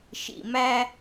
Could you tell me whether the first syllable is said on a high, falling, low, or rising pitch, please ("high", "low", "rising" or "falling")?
low